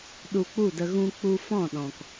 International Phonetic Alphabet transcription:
ɗ u˧ k͡p u˦˨ d ə˧ ɣ ũ˦ k͡p u˦ f ɔ̃˦˨ ɗ ɔ̃˨ k

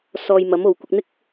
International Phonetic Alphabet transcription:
s ɔː˧ j m ɐ˨˥ m o˨ w kʷ ɪ˧ k̚ n̪ ɪ˥ k̚

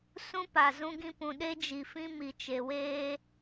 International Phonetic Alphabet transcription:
s ũ˦ p a˨ z ũ˦ ɡ ĩ˦ p ũ˨ ɗ e˦ d͡ʒ i˨ f ĩ˦ m i˨ t͡ʃ e˨ w eː˦

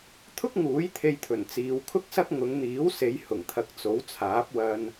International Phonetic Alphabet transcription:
t̪ʰ ʊ˥ k̚ ŋ uː˨˥ j t̪ʰ e˧ j t̪ʰ ɵ˨˩ n t͡s iː˨˧ w kʰ ʊ˥ k̚ s ɐ˥ k̚ ŋ ʊ˨˧ ŋ n̪ iː˨˥ w s e˨˧ j h ʊ˨˩ ŋ t̪ʰ ɐ˨˥ k̚ t͡s o˨˥ w t͡sʰ aː˨˥ p̚ w ɐ˧ n

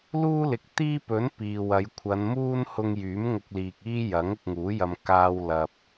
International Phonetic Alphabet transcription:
l uː˥ l ɪ˨˥ k̚ t̪ iː˥ p ɵ˨˥ n p iː˨ w ɐ˨˧ j kʷʰ ɐ˨˧ n m uː˥ n h ʊ˧ ŋ j yː˨˥ m ŋ ʊ˧ k̚ l iː˨ k̚ iː˥ j ɐ˨˥ ŋ ʊ˧ k̚ ŋ uː˨˥ j ɐ˧ m k aː˧ w l ɐ˨ p̚

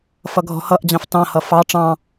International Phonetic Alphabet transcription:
f ʌ ɡʱ ɔ̤ h ʌ ʔ d͡ʑ ɑ̃ f t ɑ̃ h ʌ f ɑ ʈ͡ʂ ɑ̃

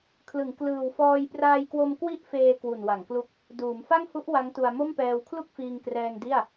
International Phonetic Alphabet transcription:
kʰ l ɯ˩˦ ŋ k l ɯː˨˩ w f ɔː˧ j p r aː˧ j k w o˧ m k w i˥˩ ʔ f eː˧ k w u˨˩ n w a˩˦ ŋ k l u˦˥ k̚ | d uː˩˦ m f a˥˩ ŋ h u˦˥ ʔ w a˦˥ ŋ t u˧ a̯ m o˥˩ m p ɛː˧ w kʰ l u˥˩ k̚ f iː˧ ŋ k r ɛː˧ ŋ d i˥˩ a̯

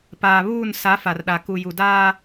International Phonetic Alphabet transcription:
p aː˨ β uː˦˨ n s a˨˦ f a˨ r ɗ a˨ k u˨ j u˨ d aː˦

